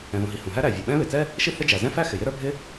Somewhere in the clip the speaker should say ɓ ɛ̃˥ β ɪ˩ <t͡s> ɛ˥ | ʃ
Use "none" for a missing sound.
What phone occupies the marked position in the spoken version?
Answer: t͡s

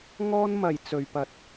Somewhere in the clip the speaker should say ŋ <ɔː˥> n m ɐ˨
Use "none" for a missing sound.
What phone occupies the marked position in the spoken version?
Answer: ɔː˥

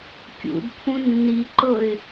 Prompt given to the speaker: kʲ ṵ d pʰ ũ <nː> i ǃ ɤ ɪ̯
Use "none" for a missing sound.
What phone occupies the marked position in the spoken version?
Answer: nː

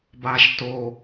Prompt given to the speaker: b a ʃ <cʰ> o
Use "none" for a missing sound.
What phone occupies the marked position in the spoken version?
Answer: t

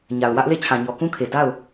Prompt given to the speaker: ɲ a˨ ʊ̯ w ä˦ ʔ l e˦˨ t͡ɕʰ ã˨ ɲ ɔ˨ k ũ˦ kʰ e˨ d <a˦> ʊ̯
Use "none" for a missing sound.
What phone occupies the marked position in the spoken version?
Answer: a˦˨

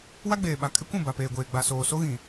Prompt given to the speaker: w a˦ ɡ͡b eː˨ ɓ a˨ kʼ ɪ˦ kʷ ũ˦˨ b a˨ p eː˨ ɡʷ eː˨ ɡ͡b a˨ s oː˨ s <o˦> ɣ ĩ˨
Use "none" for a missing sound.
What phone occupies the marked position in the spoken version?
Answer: o˦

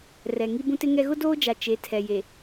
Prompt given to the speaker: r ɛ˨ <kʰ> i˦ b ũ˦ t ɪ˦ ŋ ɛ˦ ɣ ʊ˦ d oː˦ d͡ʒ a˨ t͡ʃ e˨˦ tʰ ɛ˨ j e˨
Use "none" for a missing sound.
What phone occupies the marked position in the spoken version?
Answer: ŋ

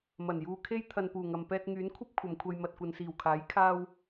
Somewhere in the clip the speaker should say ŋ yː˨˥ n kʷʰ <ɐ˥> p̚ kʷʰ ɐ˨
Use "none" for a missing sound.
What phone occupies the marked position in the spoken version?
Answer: ɐ˥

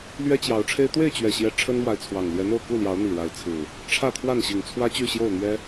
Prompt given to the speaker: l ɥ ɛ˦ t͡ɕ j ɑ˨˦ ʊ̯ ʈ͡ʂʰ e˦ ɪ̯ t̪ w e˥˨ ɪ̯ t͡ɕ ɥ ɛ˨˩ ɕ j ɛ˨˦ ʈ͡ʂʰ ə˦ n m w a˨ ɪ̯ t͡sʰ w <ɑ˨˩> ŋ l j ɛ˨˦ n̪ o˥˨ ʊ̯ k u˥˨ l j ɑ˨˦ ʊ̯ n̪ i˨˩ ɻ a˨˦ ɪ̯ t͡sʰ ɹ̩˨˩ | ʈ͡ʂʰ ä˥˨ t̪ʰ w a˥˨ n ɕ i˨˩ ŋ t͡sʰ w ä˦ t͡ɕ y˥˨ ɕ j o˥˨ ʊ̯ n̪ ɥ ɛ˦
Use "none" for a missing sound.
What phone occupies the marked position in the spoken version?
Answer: ɑ˨˩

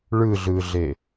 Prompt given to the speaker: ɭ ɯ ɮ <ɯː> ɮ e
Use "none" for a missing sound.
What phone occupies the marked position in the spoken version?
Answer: ɯː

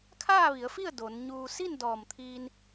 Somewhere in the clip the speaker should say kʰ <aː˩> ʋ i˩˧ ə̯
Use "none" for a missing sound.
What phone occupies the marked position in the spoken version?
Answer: aː˥˨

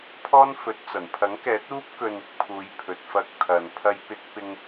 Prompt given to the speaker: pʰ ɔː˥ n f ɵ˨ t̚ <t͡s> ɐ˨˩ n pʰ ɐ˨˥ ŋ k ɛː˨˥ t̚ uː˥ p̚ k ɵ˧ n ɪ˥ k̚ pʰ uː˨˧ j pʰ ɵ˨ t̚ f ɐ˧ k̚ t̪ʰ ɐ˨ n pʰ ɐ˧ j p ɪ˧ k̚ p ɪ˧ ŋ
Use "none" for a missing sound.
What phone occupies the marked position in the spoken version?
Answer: t͡s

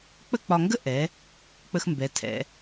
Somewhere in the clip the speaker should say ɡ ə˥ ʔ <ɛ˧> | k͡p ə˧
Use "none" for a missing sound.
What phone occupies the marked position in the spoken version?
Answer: ɛ˩˧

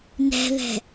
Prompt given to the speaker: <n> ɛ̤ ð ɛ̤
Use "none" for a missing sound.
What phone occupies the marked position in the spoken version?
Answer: n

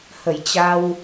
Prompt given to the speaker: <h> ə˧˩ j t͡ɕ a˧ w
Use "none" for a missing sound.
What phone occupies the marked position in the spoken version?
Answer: h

